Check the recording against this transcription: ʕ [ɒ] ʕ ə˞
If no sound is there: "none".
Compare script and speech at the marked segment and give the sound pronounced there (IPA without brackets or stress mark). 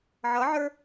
ʌ